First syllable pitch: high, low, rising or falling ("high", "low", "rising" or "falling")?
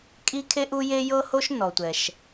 high